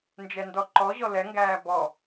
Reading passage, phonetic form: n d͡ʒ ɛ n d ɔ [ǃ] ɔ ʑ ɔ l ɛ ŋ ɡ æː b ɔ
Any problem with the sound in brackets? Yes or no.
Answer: no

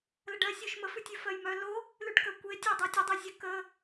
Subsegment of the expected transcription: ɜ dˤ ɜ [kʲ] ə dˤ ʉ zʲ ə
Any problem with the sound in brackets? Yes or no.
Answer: yes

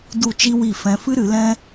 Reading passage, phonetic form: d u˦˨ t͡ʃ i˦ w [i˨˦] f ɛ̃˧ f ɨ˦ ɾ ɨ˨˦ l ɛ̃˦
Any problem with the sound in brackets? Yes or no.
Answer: yes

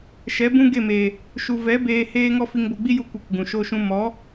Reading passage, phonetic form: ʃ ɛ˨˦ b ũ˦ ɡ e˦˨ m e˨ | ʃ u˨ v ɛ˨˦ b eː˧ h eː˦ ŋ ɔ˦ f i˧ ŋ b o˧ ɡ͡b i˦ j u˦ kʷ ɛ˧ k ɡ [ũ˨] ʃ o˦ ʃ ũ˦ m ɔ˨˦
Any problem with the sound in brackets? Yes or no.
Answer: no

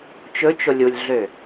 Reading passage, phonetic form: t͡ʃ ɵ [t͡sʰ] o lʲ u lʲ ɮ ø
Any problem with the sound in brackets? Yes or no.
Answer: yes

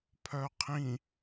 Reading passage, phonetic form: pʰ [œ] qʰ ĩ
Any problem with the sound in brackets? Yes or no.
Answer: no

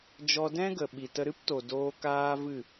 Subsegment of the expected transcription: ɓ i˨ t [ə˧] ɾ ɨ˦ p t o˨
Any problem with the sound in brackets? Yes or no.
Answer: no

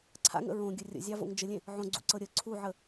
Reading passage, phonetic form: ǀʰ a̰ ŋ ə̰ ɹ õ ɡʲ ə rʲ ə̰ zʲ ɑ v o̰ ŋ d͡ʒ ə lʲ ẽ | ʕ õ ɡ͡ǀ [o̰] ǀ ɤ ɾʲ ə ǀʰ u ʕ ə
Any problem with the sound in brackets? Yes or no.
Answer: yes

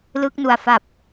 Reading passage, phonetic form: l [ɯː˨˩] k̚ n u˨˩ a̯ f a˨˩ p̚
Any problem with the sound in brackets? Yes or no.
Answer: yes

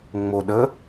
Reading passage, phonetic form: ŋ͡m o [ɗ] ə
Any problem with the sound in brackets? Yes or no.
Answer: no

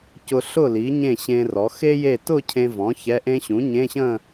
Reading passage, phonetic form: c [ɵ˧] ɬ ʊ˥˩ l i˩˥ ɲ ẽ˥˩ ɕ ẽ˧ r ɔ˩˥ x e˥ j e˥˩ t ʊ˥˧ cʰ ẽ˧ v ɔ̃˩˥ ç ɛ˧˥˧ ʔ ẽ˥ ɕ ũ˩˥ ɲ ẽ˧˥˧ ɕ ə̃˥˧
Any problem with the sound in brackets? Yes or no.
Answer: yes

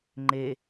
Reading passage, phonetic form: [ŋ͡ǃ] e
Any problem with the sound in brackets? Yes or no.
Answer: no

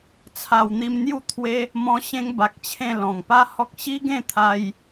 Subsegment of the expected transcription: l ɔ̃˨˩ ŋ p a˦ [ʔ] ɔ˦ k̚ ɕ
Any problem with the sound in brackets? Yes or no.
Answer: yes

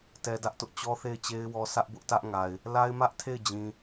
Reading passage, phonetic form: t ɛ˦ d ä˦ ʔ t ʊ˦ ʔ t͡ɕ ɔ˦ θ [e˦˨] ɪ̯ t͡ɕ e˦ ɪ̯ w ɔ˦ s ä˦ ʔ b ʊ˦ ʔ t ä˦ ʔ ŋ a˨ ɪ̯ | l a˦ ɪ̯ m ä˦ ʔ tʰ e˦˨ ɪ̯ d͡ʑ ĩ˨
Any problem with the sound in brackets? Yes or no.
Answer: no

